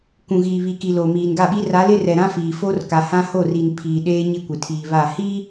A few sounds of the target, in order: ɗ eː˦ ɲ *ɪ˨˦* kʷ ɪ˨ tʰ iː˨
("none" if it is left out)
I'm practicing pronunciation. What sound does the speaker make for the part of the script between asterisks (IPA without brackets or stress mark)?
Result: ɪ˦